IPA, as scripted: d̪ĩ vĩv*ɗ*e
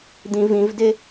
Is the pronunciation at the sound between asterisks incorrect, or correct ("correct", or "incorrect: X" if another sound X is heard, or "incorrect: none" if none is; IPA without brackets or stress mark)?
incorrect: d